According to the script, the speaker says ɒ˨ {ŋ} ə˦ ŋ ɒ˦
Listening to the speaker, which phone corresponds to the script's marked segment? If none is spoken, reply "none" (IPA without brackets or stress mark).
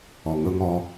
ŋ